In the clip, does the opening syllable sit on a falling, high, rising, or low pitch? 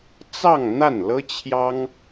falling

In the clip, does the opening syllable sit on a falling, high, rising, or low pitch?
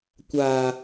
high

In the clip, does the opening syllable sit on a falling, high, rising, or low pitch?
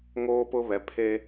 high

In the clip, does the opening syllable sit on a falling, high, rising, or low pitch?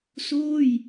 falling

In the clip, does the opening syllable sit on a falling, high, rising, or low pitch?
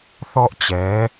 high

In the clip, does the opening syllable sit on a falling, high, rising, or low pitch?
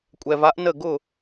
low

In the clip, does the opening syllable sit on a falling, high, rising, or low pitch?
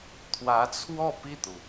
rising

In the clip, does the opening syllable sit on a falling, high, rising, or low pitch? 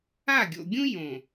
falling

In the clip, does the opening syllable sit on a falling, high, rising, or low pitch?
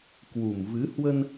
low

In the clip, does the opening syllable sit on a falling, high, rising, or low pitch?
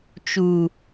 low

